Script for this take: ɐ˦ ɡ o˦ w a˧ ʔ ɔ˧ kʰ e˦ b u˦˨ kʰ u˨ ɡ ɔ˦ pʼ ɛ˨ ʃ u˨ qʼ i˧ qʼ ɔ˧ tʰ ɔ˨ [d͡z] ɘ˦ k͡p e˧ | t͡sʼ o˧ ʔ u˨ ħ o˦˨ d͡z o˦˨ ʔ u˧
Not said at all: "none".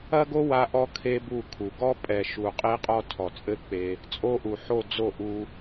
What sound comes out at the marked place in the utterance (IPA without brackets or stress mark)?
t͡sʼ